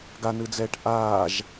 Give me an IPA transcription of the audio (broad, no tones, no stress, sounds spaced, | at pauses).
ɡ a n ɯ d͡z ɛː ʈ ʔ aː ʒ